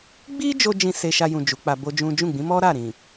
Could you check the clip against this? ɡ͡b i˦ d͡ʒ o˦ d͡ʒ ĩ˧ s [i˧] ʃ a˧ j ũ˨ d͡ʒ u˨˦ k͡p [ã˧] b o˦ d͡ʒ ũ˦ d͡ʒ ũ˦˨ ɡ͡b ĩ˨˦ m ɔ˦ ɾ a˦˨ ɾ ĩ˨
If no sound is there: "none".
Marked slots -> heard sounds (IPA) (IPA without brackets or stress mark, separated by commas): e˧, a˧